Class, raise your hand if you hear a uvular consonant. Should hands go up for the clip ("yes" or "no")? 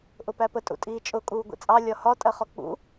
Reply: yes